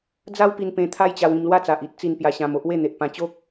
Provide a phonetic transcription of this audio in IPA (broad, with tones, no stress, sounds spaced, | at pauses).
d͡z a˦ w p i˧ n p ẽ˧ t̪ʰ a˦ j t͡ɕ a˧ w ĩ˧ m l w a˦ t͡s a˨ ʔ i˦ t̚ t͡s i˧ n p j a˧ ɕ ã˧ m o˦ ʔ w e˥˧ n̪ e˨ ʔ p ã˧ t͡ɕ o˦ k̚